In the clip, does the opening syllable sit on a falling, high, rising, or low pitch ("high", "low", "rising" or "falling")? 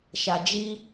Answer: low